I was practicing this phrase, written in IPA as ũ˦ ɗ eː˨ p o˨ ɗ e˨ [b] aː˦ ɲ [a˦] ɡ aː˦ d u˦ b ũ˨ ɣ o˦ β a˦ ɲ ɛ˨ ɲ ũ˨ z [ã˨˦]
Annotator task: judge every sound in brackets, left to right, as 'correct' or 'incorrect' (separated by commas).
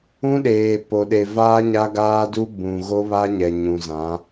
incorrect, correct, correct